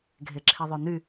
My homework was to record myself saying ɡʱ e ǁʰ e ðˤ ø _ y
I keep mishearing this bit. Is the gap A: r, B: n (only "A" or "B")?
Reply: B